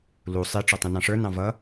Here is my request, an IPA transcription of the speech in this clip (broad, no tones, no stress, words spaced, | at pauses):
lu sˤi ʈ͡ʂɔtˤĩnɑ̃ʂə˞ nɑ̃vʌ